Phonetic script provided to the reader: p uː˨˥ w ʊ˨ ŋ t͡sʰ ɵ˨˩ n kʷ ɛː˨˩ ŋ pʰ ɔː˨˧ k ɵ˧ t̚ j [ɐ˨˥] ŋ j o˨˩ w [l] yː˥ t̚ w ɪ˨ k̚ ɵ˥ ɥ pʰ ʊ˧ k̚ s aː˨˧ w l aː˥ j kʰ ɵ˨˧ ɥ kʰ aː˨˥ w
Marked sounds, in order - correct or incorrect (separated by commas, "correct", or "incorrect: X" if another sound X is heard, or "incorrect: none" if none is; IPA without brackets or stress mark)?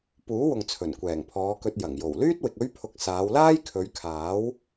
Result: incorrect: ɐ˨˩, correct